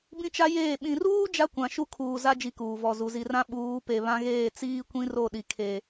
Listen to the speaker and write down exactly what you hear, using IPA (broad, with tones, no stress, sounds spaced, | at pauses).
b ĩ˦ t͡ʃ a˦ j eː˦˨ ɓ ĩ˨ r uː˦ d͡ʒ a˦ kʷ ã˨ ʃ u˦ kʰ uː˨ z a˦ d͡ʒ i˦ k uː˨ v ɔ˦˨ z u˨ z i˨ r ã˦ ɓ uː˨˦ p e˨ β ã˦ ɣ eː˦˨ t͡s iː˦ kʷ ĩ˦ r o˦˨ ɗ i˨ kʰ e˨